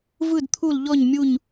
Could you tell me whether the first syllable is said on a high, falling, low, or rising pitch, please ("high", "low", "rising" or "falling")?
falling